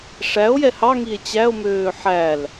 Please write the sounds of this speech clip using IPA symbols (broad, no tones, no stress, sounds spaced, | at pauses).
ʂ æ o̯ j ɛ h ɑ ŋ i e̯ t͡ɕ æ o̯ m øː ħ æ l